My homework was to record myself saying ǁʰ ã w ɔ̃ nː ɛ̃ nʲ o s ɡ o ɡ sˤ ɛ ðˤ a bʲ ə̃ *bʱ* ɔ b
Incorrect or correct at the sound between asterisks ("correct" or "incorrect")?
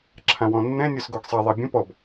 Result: incorrect